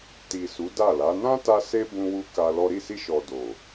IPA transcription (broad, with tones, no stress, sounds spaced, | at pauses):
t i˨ s u˨˦ d a˦˨ l a˨˦ n ã˦ t a˧ s e˦ b ũ˦ w u˦ k a˧ l ɔ˦ ɾ i˦˨ s i˧ ʃ ɔ˨ d o˨